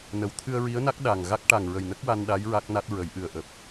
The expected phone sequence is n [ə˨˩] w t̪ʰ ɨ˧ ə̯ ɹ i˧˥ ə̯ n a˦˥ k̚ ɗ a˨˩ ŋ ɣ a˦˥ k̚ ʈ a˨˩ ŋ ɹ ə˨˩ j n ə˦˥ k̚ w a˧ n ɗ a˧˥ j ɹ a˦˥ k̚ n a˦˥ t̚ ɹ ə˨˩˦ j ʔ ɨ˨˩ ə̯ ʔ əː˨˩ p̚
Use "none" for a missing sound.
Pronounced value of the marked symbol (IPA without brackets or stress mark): ə˨˩